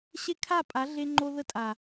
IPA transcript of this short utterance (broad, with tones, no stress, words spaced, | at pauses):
ɕe˦kʰa˦˨pʼa˨˦ ɮe˦ŋ͡ǃo˦ ðə˦tʼa˨